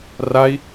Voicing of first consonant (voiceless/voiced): voiced